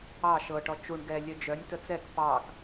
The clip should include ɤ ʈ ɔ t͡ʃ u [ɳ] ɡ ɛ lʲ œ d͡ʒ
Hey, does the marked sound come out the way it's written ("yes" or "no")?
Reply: yes